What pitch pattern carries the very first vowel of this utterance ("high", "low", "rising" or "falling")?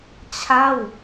falling